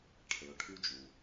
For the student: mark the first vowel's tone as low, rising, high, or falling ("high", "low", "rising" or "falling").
low